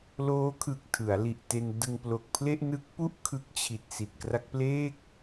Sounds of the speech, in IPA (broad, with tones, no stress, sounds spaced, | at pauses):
l oː˦˥ kʰ ɯ˨˩ k̚ tʰ ɯ˩˦ a̯ l i˨˩ ʔ t e˧ n d ɯ˧ ŋ p l o˨˩ k̚ pʰ l e˥˩ ʔ n ɯ˦˥ k̚ p u˥˩ ʔ kʰ ɯ˦˥ k̚ t͡ɕʰ i˨˩ t̚ s i˨˩ t̚ k r a˦˥ k̚ p l eː˥˩ k̚